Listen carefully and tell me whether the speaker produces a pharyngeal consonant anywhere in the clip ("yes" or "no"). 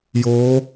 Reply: no